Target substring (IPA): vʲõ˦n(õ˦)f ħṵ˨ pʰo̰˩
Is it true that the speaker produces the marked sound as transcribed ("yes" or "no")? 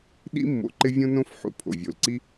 yes